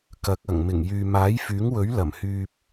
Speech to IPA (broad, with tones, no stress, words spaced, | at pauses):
kɐ˨˥k̚ɐ˨˩ŋ mɪ˨˩ŋjyː˨ maː˨˥jfyː˨˥ŋwɵ˨˥ɥ lɐ˨˩mhyː˧p̚